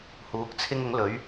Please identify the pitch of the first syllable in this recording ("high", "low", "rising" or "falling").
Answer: rising